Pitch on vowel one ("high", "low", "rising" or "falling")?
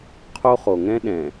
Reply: high